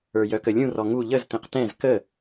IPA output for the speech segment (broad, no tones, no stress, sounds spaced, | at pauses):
ə˞ j œ k ə lʲ ũ r ɔ ŋ u ʎ ə z t ẽ q t ɛ̃ z k ə